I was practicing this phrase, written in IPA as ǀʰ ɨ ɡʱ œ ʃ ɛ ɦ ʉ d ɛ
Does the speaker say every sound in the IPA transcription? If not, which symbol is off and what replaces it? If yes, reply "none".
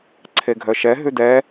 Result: ɨ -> e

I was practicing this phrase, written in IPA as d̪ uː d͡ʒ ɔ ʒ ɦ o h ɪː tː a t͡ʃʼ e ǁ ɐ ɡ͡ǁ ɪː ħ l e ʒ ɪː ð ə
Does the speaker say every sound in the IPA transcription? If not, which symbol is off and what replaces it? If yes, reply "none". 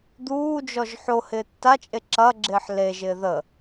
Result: ɦ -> ħ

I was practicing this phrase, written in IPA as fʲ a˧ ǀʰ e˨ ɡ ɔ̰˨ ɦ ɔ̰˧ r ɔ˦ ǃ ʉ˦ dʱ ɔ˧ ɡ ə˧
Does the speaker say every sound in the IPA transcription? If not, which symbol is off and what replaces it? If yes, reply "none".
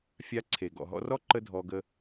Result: ʉ˦ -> ə˦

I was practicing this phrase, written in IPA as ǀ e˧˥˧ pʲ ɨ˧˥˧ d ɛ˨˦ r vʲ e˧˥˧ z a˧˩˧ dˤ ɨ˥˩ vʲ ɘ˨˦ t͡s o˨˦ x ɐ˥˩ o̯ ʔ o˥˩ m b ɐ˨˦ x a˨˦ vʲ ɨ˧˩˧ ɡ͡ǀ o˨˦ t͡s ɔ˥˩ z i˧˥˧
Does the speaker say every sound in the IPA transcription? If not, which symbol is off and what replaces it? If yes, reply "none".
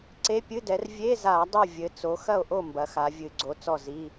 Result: none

